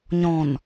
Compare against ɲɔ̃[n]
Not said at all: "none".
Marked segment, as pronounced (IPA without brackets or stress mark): n